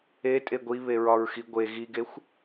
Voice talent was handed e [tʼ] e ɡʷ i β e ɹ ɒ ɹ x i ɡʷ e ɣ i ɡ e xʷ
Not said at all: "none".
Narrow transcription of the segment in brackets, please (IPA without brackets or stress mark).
tʼ